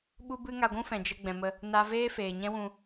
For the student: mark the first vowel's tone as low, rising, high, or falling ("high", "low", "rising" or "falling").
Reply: high